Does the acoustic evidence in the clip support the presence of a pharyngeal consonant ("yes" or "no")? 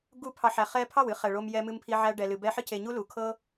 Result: yes